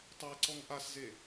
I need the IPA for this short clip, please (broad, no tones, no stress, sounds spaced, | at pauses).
tˤ ɛ ǀ ɔ ŋ ʔ a s z e